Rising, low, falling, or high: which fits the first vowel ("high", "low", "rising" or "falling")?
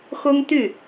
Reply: high